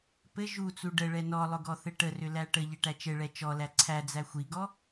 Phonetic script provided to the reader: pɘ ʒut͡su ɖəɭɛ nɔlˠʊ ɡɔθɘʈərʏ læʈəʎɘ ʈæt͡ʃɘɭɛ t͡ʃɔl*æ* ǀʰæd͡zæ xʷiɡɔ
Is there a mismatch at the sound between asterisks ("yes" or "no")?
no